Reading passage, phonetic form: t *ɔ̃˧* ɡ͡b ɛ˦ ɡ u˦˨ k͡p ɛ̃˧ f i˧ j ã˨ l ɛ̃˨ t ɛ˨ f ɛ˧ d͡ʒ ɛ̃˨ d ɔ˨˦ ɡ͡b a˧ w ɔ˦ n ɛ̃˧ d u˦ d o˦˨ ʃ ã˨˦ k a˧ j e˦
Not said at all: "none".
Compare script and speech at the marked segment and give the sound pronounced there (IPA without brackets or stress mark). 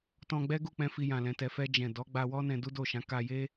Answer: ɔ̃˧